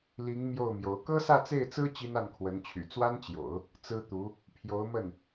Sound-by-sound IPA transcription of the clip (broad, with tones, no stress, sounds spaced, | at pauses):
l i˧˥ ŋ m j o˥˩ ʊ̯ m j o˧˥ ʊ̯ k ɤ˥ s ä˥˧ t͡s e˥˩ ɪ̯ t͡s ɹ̩˥ t͡ɕ i˥ n a˥˩ n kʰ w ə˧˥ n t͡ɕʰ y̰˨˩ t͡s w a˥ n t͡ɕ j o̰˨˩˦ ʊ̯ | t͡s ɹ̩˥ t̪ u˧˥ | pʰ j o˧˥ ʊ̯ m ə˥˩ n